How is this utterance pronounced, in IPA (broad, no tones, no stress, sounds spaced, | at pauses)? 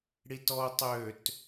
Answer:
ɽ i t ɔ o̯ tˤ ø t